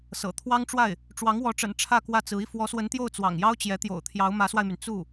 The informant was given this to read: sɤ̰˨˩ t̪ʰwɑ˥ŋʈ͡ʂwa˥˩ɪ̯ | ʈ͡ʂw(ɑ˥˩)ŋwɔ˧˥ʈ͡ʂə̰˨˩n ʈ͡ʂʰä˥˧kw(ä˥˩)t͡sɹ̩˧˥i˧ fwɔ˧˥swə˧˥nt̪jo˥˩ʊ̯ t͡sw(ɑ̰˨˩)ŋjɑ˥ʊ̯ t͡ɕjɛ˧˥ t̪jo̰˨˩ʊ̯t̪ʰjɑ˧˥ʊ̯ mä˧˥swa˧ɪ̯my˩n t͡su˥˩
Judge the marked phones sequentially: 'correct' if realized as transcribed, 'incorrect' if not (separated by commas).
incorrect, correct, correct